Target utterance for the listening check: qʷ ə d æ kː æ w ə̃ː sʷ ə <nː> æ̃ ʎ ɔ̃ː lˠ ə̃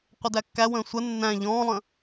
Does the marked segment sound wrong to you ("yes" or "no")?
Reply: no